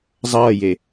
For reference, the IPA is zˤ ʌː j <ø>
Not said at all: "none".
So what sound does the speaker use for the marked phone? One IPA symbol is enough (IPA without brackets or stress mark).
e